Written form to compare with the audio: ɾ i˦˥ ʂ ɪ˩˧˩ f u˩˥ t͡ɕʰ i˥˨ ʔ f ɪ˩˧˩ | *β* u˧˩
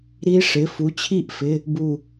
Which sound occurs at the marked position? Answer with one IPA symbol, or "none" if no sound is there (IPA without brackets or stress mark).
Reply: b